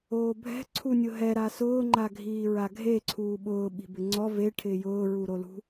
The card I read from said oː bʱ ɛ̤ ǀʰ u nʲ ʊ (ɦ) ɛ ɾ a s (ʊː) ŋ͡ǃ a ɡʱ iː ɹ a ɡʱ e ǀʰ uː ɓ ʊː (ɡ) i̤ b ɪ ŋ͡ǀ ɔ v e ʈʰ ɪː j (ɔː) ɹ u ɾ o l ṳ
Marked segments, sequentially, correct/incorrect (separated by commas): correct, correct, incorrect, incorrect